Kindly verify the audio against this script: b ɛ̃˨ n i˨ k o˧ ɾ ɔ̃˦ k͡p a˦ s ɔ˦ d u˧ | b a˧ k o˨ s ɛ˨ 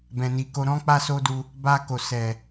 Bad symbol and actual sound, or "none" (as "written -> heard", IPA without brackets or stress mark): ɔ˦ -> o˦